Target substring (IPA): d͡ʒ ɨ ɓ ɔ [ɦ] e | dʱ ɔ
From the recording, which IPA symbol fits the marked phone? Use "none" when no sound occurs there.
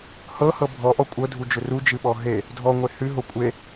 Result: ɦ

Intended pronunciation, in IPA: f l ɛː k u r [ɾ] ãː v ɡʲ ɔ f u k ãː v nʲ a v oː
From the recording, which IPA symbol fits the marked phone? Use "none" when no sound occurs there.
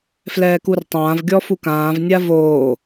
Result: tˤ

